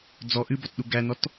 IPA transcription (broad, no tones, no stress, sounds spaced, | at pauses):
d͡z ɔ ʔ ɨ b ɔ t ɗ u ɡ æ n̪ ɔ t